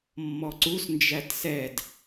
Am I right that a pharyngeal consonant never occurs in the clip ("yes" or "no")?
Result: yes